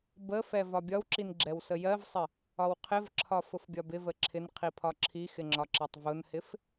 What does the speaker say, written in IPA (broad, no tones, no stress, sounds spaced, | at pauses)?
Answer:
b ə f ɛ v ɒ bʲ ɒ w ǁ i n ɡ͡ǁ ɛ w s ə j ɜ v sˤ ɪ | ɒ w qʰ ɪ v ǁʰ ɒ f ʊ f bʲ ɒ b ɪ v ə ǁʰ ɪ n qʰ i pʰ ɒ ǁʰ i x ɪ ŋ͡ǁ ɒ ǁ ɑ tˤ v ʊ n h ɪ f